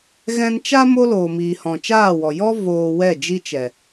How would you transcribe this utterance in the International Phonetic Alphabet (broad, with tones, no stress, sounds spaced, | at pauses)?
ɣ ɛ̃˦ n t͡ʃ a˦ m o˦ l oː˨ m iː˨ h ɔ̃˨ t͡ʃ aː˦˨ w ɔ˨ j ɔ˦ v oː˧ w ɛ˦˨ d͡ʒ i˦ t͡ʃ ɛ˨